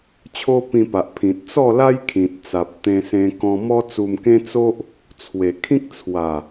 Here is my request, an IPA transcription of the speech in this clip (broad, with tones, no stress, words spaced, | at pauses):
t͡ɕʰo˦pĩ˧pa˨ʔ pʰĩ˨t̚t͡sɔ˥˧la˦j kʰĩ˨t̚t͡sa˨p̚t̪ẽ˧ sẽ˧kɔ̃˧ mɔ˦t͡su˧mkẽ˦ t͡so˦ʔ | t͡sʰwe˨˩kʰĩ˦k̚ t͡sʰwa˨˩